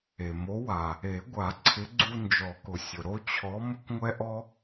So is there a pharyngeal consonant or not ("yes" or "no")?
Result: no